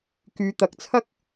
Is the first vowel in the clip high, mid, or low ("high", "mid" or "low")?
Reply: high